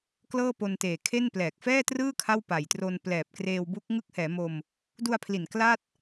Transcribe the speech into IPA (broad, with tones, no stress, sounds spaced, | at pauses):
k l ɤː˥˩ p o˧ n t eː˨˩ kʰ e˥˩ n p l ɛː˨˩ k̚ f ɛː˥˩ t r ɯː˥˩ kʰ a˥˩ w p a˨˩ j t r o˧ n p l ɛː˨˩ p̚ k r eː˧ w b u˦˥ k̚ ŋ ɯ˦˥ k̚ h ɛː˩˦ m o˧ m | d u˧ a̯ pʰ l i˨˩ n k l a˥˩ t̚